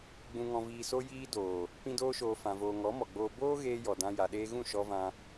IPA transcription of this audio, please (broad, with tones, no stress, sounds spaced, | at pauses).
ɡ͡b ũ˨ ŋ ɔ̃˨ v iː˨ s o˧ j iː˧ d oː˨ | p ĩ˧ d oː˧ ʃ oː˨ f ã˨ v oː˨ ŋ ɔ˨˦ m ɔ˨ ɡ͡b oː˧ b oː˦ ɣ eː˧ j ɔ˨ d ã˧ j a˨ ɗ eː˧ ɣ ũ˦˨ ʃ ɔ˧ v ã˧